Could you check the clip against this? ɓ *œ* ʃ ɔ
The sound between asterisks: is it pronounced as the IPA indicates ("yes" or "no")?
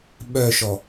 yes